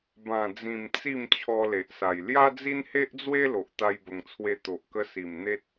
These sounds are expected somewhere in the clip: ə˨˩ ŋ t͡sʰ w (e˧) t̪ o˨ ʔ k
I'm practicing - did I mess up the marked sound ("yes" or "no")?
no